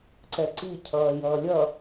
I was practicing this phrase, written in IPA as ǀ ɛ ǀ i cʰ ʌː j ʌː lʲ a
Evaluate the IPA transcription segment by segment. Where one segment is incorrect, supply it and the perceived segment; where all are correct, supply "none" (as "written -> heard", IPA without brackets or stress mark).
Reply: a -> ʌ